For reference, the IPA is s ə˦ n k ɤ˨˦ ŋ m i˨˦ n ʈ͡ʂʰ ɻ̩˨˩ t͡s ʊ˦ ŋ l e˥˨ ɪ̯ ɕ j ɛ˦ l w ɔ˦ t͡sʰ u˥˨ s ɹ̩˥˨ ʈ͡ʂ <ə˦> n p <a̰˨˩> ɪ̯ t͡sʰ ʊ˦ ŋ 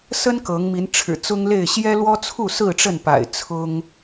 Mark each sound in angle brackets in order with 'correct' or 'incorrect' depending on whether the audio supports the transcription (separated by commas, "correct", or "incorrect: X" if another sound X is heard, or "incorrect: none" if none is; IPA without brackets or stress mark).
incorrect: ə˥˨, correct